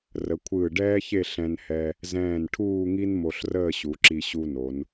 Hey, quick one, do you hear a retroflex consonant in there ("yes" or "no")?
yes